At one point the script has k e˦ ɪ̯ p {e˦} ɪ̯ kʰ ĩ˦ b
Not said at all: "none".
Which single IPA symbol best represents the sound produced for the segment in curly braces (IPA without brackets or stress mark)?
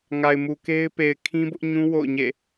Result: e˨